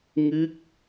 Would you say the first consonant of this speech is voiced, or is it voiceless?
voiced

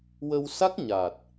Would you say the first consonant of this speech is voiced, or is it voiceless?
voiced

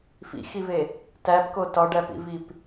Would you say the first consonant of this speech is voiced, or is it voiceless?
voiceless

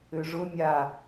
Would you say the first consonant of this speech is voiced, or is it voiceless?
voiced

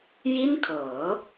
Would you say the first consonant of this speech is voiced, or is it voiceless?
voiced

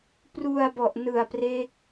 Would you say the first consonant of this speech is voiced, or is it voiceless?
voiceless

